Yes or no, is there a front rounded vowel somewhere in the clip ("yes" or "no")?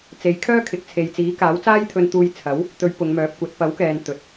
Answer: yes